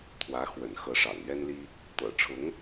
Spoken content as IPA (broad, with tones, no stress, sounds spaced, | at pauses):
t̪ʰ w ä˧˥ x w ə̰˨˩ n x ɤ˧˥ ʂ ɑ̰˨˩ ŋ ɥ ɛ˥ n l i˥ | t̪ ɤ̰˨˩ ʈ͡ʂʰ ʊ˧˥ ŋ